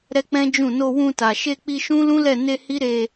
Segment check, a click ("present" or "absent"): absent